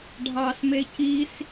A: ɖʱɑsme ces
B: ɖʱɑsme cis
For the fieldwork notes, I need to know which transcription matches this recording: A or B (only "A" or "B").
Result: B